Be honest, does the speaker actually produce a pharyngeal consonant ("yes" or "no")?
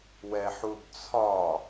yes